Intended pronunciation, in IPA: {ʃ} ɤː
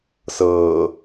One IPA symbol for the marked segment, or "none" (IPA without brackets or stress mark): s